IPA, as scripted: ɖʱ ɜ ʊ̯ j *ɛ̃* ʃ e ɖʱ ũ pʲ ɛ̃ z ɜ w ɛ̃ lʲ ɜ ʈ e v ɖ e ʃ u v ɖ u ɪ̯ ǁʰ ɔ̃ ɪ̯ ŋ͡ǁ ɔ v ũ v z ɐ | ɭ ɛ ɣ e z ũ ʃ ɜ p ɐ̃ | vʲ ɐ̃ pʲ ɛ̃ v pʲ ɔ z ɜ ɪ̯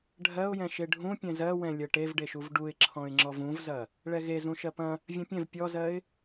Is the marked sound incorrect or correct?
correct